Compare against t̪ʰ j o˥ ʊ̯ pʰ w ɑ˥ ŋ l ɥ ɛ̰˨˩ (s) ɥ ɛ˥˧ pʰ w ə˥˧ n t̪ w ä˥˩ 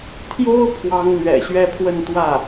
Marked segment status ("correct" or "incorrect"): incorrect